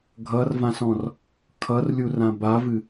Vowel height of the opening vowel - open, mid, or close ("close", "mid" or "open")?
mid